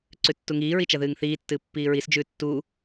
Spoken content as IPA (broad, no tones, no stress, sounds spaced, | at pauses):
ǀ ʉ tː u ŋ iː ɹ i t͡ʃ ɐ ð ɨː ŋ θ iː tː ɨː pː iː ɹ i s d͡ʒ ʉː tː uː